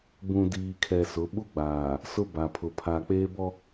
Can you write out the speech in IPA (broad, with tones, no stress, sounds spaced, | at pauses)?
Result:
b ũ˨ d iː˨ kʰ ɛ˨ s ʊ˨˦ ɓ u˦ ɡ͡b aː˨ | s ʊ˦ b a˨ pʰ ʊ˨ pʰ aː˨ k͡p eː˦ b ɔ˦